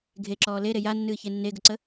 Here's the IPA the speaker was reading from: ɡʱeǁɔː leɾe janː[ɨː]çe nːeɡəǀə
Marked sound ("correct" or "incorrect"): correct